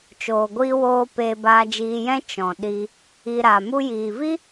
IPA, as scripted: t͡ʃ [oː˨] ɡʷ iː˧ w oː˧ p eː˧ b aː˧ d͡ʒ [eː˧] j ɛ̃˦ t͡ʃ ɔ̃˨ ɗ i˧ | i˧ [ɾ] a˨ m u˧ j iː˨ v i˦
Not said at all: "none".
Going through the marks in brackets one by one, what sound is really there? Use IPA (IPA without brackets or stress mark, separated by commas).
oː˨, iː˧, ɾ